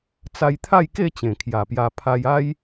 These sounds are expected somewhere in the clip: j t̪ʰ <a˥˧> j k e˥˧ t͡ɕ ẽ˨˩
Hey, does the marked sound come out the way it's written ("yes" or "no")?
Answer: yes